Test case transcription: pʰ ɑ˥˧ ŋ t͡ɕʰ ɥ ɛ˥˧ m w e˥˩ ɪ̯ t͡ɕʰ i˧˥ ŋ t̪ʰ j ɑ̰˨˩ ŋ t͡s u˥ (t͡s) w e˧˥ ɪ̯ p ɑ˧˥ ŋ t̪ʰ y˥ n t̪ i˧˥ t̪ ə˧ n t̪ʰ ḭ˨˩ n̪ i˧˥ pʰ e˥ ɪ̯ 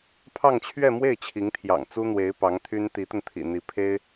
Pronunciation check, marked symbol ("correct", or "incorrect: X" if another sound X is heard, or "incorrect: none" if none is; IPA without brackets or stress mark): incorrect: n̪